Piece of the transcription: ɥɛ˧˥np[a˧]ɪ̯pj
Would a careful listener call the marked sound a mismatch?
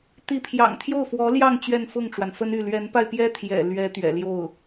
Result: no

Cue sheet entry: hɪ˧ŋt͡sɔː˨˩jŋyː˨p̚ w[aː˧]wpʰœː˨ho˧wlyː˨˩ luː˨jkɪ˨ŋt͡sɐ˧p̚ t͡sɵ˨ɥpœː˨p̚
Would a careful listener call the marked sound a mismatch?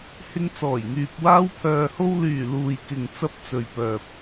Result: no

